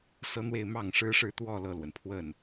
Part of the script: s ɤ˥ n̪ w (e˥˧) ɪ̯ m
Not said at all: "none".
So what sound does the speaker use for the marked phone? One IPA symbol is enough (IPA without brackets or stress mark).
e˥˧